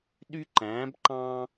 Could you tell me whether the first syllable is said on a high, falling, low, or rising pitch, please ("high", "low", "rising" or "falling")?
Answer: high